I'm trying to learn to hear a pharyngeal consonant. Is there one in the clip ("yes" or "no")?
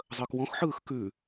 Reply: yes